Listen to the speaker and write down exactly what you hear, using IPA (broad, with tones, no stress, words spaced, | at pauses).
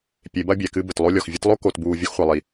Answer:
pʲe˨˦bɐ˦bʲɛ˨ kɨ˧ bɘ˨tlˠo˦lʲɔ˨x vʲɨ˧tlˠo˦ ko˨tbuː˨ vʲo˦xχʷɐ˨lˠi˨